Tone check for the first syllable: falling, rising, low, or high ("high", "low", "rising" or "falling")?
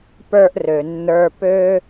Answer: high